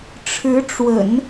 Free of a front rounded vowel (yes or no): yes